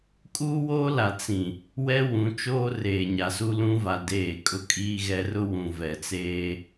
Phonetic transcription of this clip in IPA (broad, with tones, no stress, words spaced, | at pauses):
kʼuː˦woː˦la˨ t͡sĩ˨ | wɛ˦wũ˨˦t͡ʃoː˦ reː˨ɲa˨su˦lũ˦ va˦deː˦˨ kʼʊ˦kʼiː˦ɣɛ˦ rʊ˦wũ˨vɛ˨t͡seː˦